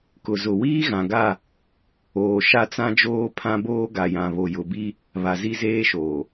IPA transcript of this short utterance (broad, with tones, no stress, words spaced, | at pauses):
kʊ˨zʊ˨ wiː˦ɣã˨ɡa˦˨ | oː˨ʃa˦t͡sã˦d͡ʒoː˦ pʰã˦boː˦ɡa˨jã˨ βo˨jʊ˨bi˦ | βa˨zi˦zeː˦ʃoː˨